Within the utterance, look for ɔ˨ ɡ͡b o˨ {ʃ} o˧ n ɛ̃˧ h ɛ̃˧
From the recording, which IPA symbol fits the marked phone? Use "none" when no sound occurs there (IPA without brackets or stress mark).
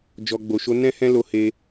ʃ